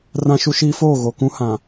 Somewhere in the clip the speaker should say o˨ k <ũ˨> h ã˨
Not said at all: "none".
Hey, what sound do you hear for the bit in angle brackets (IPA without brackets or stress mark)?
ũ˦